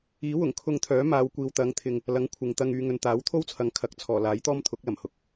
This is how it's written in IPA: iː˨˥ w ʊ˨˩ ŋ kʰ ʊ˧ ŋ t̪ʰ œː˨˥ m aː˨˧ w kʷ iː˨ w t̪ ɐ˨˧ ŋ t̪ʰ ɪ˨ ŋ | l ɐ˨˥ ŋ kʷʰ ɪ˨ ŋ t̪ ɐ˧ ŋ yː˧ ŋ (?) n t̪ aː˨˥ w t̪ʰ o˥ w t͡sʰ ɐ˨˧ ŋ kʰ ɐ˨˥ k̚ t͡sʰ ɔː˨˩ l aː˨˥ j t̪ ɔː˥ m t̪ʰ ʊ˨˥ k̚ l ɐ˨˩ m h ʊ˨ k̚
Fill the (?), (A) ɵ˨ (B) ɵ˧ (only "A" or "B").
A